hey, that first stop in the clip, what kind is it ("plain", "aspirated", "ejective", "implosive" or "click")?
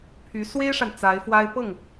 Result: aspirated